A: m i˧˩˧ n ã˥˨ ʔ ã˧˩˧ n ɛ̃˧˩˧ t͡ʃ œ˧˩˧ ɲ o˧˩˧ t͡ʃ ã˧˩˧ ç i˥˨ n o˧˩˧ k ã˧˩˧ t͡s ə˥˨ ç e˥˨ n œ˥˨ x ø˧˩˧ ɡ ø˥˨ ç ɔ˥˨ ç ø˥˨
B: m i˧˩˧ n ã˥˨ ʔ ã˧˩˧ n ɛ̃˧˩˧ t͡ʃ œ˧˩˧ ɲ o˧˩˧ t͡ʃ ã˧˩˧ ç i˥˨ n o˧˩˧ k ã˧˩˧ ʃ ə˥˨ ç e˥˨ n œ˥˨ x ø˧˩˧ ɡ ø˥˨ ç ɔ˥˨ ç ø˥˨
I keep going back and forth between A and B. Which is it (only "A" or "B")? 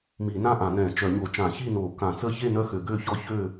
A